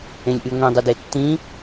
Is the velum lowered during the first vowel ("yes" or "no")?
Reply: yes